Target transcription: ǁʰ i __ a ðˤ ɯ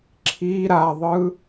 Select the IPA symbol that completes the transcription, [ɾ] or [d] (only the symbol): ɾ